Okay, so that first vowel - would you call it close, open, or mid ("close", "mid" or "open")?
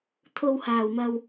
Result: mid